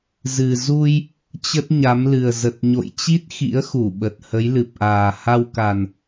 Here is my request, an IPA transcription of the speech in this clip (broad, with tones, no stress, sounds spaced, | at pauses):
z ɨ˨˩ z u˧ j | t͡ɕ ə˦˥ t̚ ɲ a˨˦ m l ɨ˨˩ ə̯ z ə˨˩ t̚ ɲ o̰˧˨ j t͡ɕ i˦˥ t̚ x ḭ˧˥ ə̯ x u˧˩ ɓ ə˨˩ t̚ h ə˨˦ j l ɨ˨˩ p̚ ʔ aː˨˩ h a˧ w k a˨˩ n